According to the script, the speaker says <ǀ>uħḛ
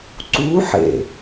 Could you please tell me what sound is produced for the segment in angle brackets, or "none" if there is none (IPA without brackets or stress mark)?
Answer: ǀ